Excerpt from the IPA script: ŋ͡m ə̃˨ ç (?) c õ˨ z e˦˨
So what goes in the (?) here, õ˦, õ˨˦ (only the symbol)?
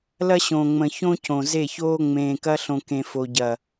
õ˦